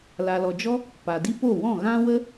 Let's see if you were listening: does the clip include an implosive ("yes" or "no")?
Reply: no